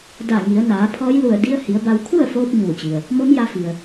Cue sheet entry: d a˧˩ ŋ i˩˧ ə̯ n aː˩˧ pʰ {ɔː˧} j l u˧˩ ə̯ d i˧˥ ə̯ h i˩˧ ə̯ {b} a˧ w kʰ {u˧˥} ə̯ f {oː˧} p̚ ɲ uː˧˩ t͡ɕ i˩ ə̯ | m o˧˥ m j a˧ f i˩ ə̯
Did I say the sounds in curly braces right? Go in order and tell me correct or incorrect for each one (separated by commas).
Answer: incorrect, correct, incorrect, correct